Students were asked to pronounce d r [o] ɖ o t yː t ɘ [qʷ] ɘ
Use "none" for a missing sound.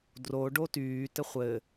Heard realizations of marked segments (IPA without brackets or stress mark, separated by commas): o, χʷ